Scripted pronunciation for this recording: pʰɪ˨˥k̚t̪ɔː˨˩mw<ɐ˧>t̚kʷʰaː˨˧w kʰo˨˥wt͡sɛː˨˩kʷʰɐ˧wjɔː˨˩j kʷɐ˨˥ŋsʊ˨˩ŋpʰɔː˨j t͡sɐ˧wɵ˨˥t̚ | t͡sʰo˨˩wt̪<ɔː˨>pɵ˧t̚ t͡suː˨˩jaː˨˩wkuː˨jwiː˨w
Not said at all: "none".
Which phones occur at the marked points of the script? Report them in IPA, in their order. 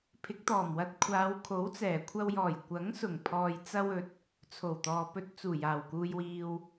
ɐ˧, ɔː˨

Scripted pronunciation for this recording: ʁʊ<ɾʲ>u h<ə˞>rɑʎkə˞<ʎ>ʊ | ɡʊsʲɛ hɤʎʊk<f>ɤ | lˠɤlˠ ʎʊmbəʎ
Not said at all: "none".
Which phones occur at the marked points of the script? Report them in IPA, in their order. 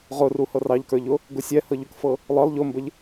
r, ɤ, ʎ, f

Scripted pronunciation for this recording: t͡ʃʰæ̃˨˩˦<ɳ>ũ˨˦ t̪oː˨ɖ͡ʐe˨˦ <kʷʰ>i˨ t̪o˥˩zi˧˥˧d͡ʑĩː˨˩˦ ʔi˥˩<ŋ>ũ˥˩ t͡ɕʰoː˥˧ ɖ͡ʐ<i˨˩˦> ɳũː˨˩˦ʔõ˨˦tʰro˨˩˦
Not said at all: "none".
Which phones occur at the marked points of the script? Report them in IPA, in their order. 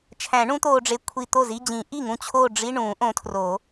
ɳ, kʷʰ, ŋ, i˧˥˧

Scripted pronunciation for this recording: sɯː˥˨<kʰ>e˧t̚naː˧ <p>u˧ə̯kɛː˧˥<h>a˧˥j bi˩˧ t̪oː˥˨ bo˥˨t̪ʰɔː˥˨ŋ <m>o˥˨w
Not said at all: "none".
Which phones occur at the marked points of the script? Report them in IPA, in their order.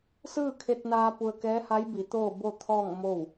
kʰ, p, h, m

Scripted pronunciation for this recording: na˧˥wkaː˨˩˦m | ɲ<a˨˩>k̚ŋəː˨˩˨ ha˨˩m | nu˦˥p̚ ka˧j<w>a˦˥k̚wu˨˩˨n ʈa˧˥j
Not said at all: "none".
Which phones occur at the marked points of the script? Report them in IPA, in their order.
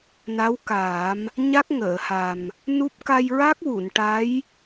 a˦˥, ɹ

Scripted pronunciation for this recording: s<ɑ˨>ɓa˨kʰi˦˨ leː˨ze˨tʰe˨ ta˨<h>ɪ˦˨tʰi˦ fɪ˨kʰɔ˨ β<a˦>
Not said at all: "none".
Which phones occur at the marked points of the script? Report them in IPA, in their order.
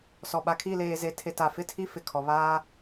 ɔ˨, f, aː˦

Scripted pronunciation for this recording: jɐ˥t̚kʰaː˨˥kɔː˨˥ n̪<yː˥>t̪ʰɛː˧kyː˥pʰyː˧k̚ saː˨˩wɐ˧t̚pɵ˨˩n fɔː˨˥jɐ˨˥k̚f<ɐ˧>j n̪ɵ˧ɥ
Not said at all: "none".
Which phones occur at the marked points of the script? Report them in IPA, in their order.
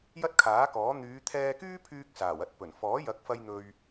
yː˨˧, ɐ˧

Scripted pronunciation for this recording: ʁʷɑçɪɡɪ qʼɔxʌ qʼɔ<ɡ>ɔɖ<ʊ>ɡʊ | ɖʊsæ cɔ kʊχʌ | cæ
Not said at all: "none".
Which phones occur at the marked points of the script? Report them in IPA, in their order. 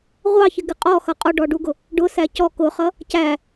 ɖ, u

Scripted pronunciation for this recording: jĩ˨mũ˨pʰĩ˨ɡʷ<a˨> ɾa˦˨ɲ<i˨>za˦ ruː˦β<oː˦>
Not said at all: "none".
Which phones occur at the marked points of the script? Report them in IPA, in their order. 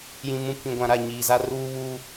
ã˨, iː˨, uː˦

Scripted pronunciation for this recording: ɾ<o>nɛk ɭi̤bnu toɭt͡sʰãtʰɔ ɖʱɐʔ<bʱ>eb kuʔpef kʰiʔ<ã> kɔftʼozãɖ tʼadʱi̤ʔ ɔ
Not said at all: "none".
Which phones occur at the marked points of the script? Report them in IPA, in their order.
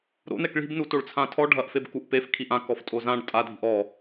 o̰, f, ã

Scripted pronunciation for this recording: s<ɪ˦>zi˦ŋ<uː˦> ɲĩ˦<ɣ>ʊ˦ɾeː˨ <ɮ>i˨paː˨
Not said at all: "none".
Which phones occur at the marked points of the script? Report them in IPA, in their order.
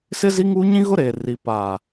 ɪ˦, uː˦, ɣ, r

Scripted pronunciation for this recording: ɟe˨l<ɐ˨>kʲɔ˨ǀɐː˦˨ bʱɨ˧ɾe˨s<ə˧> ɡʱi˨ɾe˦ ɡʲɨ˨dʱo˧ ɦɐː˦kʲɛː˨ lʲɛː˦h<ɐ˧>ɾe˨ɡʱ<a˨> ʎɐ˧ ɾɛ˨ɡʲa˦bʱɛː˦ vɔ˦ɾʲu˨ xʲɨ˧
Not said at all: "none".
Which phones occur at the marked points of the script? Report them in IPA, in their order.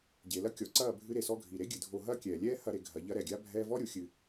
ɐ˦, ɔ˧, ɐ˧, ɐ˨

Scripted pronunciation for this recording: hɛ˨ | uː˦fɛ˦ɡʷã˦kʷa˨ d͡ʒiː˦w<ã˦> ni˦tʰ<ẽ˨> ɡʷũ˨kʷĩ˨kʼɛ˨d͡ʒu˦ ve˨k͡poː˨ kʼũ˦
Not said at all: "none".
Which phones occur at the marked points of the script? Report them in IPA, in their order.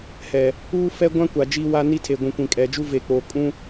a˦, e˨

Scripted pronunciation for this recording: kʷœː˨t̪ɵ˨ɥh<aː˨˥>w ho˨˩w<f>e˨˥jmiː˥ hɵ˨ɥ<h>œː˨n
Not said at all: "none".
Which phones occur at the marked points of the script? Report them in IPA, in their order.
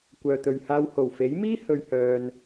aː˧, f, h

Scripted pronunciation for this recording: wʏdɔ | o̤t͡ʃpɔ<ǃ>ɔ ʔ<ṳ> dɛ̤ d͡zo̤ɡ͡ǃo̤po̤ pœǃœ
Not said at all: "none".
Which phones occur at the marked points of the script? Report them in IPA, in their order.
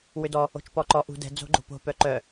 ǃ, ṳ

